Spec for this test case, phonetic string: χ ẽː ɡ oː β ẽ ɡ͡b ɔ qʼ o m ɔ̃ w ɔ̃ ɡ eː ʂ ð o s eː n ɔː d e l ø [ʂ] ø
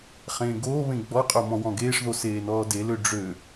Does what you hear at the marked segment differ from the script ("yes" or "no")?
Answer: yes